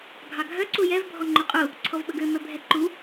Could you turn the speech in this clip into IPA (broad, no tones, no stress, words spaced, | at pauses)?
ɡʱɑɡʱœ ǀujɛv bʱɔŋ͡ǃøqʼu | ǀʰɔvɓɵɡø mœbʱɛǃu